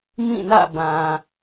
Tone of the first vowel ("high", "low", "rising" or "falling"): falling